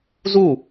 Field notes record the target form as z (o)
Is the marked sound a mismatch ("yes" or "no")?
yes